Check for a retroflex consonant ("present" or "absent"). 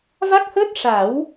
present